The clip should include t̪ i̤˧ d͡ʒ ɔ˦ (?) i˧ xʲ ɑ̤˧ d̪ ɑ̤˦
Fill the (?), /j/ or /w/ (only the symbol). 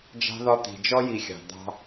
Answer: j